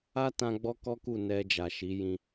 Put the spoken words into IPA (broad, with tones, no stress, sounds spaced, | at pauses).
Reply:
a˦ t ã˧ ɡ͡b ɔ˦ k ɔ˦ k u˦˨ n ɛ˧ d͡ʒ a˨ ʃ i˨˦ j ĩ˧